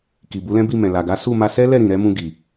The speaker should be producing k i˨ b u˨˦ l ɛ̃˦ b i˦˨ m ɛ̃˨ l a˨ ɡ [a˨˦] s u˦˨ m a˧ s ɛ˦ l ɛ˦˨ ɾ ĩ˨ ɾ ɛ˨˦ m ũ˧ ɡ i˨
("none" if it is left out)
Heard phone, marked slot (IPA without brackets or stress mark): a˨˦